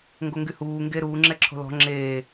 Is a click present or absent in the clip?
present